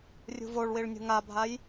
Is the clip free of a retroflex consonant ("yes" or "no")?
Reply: no